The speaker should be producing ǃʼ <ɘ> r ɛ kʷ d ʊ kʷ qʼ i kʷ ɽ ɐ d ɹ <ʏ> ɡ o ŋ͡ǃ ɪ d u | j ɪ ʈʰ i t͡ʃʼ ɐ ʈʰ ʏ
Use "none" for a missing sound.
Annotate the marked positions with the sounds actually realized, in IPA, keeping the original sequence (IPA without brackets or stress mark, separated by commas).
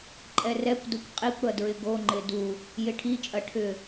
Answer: ɛ, ɪ